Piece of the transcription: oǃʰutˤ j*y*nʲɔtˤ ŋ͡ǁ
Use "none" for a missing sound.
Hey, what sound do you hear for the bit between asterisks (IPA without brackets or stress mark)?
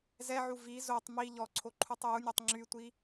u